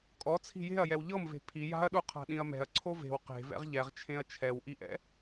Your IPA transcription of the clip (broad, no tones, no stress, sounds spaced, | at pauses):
kʼ ɔ t͡sʰ i̤ j e̤ ɐ̯ j ɛ w ʎ ɤ m v e̤ pʰ i j a̤ ɐ̯ ɗ u qʰ a̤ ɗ ĩ ɐ̯ m ɛ̤ ɐ̯ ǀʰ o v e̤ w q e̤ v ɛ̰ ʁ ʎ ɛ ʁ t͡ʃʰ ẽ ɐ̯ t͡ʃʰ ɛ w ʔ i ʔ ɛ̰